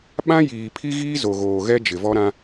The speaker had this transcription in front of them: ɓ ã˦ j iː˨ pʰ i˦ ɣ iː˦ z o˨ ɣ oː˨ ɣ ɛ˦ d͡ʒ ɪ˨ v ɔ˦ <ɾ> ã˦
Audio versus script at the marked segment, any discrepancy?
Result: no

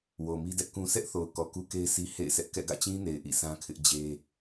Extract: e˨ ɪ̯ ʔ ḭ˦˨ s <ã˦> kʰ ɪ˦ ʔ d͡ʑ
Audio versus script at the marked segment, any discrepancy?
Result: no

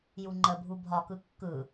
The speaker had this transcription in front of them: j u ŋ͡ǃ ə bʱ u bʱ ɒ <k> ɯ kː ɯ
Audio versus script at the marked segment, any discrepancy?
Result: no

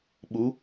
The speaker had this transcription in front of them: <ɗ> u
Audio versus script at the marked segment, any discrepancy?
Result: yes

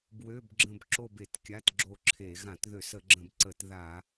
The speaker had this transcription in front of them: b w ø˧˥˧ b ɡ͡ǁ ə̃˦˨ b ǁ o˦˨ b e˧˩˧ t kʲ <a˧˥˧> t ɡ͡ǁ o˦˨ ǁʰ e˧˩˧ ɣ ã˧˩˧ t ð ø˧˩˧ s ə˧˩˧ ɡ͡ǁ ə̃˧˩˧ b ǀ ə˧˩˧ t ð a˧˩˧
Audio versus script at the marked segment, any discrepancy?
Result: no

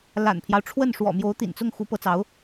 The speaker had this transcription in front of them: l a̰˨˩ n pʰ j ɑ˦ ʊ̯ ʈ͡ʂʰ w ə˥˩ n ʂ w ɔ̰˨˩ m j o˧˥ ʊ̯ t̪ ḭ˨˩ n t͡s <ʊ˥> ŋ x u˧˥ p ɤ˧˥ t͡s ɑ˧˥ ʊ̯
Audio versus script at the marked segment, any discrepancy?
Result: yes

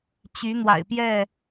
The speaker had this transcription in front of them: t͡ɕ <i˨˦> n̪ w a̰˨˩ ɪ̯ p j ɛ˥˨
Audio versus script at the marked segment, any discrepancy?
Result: yes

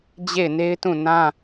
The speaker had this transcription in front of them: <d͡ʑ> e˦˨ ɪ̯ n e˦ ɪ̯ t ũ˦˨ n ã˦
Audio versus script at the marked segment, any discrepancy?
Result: no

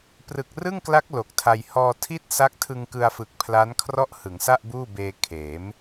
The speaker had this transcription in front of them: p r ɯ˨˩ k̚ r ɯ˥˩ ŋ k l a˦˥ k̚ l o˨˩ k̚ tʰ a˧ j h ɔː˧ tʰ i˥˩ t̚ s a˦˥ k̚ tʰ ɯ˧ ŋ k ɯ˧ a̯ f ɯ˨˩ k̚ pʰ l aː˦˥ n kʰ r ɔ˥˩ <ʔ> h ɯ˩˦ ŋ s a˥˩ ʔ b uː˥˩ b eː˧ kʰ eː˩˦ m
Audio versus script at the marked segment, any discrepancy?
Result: no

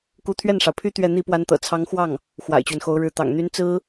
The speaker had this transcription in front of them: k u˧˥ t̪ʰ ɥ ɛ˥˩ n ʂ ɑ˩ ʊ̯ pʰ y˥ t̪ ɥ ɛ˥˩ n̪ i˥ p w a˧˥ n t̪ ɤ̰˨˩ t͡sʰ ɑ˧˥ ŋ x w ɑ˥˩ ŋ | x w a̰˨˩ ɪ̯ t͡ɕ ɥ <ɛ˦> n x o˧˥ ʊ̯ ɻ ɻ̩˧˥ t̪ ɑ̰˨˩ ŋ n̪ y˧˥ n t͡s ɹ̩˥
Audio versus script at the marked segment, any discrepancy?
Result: no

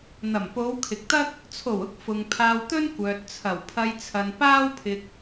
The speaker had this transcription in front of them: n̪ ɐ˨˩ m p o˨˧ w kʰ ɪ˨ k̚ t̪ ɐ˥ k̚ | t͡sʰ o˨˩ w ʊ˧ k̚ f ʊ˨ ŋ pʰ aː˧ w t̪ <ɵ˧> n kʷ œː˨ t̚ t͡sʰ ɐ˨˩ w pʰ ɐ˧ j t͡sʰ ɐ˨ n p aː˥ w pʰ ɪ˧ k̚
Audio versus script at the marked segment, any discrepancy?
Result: yes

